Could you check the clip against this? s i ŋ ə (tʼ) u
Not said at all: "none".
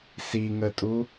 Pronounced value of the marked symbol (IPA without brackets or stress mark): tʼ